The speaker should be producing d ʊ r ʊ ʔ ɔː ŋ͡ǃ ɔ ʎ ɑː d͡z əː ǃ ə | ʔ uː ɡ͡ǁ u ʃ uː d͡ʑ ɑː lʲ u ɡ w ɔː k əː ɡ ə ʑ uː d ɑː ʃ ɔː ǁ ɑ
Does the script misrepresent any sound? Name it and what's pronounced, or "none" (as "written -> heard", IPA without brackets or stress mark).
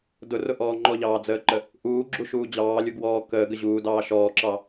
none